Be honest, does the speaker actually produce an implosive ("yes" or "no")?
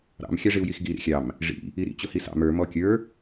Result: no